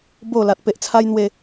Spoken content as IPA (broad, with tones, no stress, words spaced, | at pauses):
bo˨˩ la˨t̚pe˨ʔt͡sʰa˧jn̪we˨˩